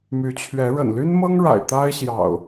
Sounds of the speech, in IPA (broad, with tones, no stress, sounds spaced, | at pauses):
m y˨˦ t͡ɕʰ ɥ ɛ˨˦ ɻ ə̰˨˩ n l y˦ n m ɤ˦ ŋ ɻ a̰˨˩ ɪ̯ t̪ a˦ ɪ̯ ɕ j ɑ̰˨˩ ʊ̯